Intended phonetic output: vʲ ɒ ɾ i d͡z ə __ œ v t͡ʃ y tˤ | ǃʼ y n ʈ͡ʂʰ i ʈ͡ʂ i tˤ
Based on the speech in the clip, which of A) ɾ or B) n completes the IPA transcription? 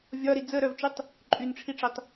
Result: A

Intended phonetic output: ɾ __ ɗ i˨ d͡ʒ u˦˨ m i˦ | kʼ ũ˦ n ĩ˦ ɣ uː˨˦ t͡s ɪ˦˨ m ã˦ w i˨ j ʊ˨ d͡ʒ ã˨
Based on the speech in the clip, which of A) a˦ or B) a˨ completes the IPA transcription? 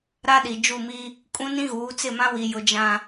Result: A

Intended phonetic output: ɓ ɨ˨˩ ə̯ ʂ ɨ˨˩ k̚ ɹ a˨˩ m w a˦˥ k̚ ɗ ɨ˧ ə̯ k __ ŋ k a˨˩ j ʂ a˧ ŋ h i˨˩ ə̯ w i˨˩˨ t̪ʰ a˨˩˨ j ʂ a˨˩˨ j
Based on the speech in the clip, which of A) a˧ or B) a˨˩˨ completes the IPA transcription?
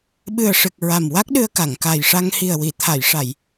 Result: B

